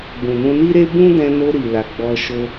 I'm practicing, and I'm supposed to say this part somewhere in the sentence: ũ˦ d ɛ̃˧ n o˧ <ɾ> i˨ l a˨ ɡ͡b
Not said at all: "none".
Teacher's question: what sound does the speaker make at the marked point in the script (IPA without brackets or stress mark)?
ɾ